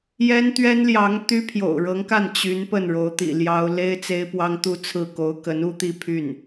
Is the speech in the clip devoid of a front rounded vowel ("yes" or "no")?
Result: no